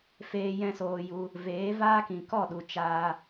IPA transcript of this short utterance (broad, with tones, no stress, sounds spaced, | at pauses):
f eː˧ j ɛ̃˦ s oː˧ j u˧ | v eː˨˦ v aː˦ k ĩ˨ k ɔ˦˨ ɗ u˨ t͡ʃ aː˧